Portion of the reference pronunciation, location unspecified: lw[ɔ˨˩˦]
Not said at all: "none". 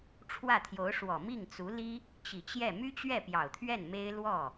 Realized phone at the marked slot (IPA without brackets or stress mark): ɔ˥˩